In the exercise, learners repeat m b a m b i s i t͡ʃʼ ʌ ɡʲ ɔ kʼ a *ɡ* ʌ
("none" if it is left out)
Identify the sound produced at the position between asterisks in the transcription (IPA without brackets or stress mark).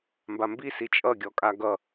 ɡ